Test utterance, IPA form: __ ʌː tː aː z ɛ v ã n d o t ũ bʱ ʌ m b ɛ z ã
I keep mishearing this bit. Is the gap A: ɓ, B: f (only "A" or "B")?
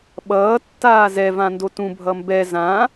A